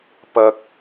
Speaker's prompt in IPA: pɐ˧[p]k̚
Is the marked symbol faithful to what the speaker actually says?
no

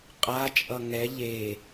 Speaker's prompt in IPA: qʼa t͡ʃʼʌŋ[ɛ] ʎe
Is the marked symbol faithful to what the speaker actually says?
yes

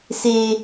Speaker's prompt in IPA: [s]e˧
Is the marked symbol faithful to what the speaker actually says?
yes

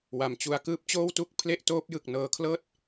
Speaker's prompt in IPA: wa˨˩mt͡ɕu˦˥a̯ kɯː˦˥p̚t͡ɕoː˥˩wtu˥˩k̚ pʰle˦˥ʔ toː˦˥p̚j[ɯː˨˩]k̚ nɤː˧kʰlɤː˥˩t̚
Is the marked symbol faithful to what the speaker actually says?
no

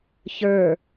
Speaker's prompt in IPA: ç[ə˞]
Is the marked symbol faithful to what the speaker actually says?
yes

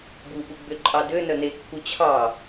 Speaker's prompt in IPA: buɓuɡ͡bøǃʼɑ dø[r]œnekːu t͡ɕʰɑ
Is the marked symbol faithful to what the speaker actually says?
no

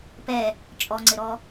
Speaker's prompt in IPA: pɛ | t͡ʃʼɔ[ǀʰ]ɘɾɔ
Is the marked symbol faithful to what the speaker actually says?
no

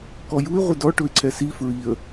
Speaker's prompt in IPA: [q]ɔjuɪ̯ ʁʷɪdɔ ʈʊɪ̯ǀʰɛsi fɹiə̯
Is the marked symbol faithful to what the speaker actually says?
no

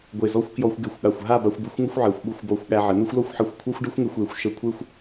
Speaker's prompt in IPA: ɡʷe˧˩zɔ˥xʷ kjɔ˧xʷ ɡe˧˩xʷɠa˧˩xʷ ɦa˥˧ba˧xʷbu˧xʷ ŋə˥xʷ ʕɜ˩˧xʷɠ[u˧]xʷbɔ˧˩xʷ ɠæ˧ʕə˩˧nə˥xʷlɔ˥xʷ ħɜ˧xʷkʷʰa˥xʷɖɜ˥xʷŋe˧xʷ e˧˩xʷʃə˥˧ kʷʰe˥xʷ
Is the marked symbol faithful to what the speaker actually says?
no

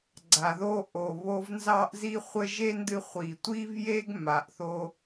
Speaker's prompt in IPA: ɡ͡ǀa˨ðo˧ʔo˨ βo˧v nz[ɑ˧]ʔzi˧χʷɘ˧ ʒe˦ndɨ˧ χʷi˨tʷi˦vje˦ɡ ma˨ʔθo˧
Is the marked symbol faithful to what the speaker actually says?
yes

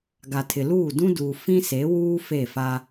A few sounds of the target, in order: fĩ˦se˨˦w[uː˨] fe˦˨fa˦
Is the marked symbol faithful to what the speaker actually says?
no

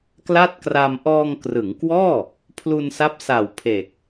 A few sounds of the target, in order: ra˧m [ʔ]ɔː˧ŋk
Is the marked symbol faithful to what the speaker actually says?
yes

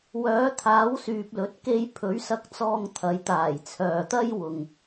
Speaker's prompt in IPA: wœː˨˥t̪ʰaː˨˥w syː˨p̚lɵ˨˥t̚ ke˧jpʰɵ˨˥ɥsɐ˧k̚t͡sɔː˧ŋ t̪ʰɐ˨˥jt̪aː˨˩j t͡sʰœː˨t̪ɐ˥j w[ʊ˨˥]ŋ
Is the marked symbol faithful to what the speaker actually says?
no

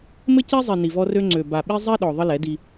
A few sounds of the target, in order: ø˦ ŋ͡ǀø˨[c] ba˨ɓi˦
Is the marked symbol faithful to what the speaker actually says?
no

